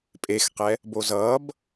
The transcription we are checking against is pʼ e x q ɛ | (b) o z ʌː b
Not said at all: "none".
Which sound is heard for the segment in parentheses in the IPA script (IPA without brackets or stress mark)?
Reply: b